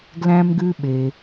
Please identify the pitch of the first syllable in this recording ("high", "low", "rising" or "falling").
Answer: high